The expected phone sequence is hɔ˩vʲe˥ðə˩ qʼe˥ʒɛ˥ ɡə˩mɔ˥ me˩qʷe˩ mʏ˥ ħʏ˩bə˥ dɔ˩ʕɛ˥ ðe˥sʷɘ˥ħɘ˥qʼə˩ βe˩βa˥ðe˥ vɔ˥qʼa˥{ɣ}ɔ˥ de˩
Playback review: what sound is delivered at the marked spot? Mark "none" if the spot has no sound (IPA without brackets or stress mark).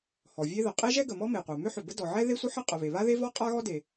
ɣ